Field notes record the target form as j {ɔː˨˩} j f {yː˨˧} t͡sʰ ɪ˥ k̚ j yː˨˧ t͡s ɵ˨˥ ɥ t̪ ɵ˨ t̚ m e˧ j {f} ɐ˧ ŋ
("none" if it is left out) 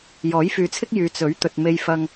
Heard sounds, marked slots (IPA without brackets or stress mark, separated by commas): ɔː˨˥, yː˨˧, f